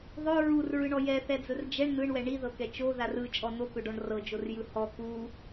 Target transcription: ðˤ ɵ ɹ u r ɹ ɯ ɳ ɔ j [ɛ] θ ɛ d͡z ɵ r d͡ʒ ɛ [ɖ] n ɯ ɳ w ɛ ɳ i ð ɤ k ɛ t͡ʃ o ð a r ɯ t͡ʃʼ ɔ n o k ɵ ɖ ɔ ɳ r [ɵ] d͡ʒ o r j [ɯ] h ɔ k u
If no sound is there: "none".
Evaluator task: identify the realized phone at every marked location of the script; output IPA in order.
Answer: ɛ, ɳ, ɤ, ɯ

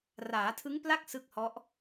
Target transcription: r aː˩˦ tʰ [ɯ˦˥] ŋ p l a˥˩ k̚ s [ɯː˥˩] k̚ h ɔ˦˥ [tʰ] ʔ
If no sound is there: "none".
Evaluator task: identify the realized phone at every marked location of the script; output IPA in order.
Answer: ɯ˦˥, ɯ˥˩, none

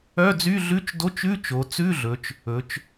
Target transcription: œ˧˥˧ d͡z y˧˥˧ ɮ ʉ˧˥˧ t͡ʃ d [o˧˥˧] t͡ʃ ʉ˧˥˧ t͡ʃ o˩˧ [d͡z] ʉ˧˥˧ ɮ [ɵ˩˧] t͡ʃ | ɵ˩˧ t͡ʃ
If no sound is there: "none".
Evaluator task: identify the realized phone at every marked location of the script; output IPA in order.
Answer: o˧˥˧, t͡s, ɵ˩˧

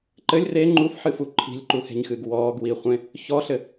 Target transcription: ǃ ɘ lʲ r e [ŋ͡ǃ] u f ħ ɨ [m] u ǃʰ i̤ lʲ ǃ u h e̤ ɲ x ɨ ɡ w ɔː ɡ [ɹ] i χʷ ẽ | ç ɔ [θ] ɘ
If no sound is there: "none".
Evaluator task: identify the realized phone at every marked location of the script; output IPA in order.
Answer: ŋ͡ǃ, f, w, ɬ

